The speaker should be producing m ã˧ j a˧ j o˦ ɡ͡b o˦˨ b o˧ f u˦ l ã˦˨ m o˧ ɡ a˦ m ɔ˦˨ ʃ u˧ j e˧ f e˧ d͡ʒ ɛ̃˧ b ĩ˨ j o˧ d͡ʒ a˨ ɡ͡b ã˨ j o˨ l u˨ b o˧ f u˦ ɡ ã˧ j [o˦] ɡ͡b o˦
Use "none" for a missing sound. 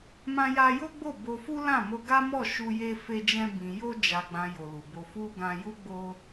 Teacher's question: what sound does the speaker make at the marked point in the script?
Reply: u˦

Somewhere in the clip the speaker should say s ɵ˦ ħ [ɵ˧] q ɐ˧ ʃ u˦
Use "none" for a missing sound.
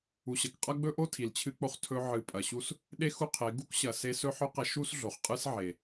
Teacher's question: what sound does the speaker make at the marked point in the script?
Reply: ɵ˦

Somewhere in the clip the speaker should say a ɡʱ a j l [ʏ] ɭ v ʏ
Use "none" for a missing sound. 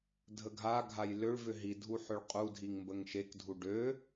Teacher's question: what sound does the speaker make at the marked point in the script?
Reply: ʏ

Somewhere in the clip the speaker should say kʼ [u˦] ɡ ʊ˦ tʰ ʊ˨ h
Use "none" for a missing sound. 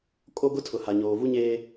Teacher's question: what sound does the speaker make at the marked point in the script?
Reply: o˦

